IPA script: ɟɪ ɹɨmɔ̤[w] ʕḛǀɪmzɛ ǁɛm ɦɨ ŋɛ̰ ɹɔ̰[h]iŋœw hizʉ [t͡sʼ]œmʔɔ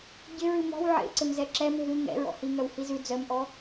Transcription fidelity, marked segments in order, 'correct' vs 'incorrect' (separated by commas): correct, correct, incorrect